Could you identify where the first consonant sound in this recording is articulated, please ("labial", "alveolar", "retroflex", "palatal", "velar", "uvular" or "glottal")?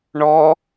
retroflex